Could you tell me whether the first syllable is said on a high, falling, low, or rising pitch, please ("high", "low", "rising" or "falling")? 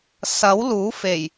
rising